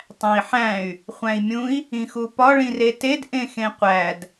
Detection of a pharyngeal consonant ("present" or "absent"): present